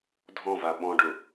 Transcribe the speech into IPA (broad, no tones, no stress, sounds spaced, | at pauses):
dʱ ɔ̃ v a ɓ ɔ̃ ɖ ʊ